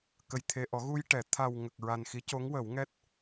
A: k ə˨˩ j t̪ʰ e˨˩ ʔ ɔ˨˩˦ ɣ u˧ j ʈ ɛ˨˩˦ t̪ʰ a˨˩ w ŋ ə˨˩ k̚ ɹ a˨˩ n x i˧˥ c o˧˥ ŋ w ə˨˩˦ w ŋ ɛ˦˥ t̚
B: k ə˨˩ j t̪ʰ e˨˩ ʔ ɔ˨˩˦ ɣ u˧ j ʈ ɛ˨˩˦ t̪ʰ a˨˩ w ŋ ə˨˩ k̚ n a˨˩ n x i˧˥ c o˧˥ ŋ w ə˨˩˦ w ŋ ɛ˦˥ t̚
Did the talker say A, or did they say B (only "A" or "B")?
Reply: A